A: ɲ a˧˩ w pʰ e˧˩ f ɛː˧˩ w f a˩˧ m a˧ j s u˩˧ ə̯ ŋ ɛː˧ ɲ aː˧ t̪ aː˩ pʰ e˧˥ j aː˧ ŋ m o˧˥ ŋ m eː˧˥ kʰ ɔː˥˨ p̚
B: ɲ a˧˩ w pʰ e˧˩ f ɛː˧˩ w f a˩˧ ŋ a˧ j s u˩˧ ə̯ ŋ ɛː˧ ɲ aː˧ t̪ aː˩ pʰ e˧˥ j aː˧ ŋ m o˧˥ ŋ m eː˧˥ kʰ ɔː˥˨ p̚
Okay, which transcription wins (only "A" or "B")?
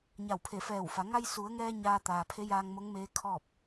B